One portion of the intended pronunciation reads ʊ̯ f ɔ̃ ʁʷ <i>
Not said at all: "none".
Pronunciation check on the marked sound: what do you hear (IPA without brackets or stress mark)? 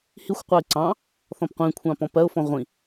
ĩ